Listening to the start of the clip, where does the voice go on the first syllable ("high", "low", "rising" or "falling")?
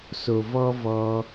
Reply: low